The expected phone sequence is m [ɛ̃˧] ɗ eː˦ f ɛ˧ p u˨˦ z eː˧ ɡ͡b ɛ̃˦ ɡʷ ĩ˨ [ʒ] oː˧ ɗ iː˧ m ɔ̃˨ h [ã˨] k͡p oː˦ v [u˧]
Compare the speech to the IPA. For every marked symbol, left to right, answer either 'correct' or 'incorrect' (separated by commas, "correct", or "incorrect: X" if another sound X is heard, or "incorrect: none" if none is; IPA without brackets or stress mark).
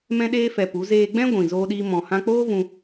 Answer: incorrect: ɛ̃˦, incorrect: z, incorrect: ã˧, incorrect: ũ˧